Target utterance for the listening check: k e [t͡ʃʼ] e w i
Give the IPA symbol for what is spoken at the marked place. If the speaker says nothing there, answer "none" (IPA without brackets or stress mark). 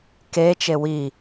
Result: t͡ʃ